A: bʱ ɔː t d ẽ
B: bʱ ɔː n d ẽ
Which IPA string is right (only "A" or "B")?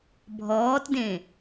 A